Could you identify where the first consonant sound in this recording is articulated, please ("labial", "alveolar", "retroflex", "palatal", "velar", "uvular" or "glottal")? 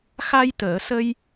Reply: velar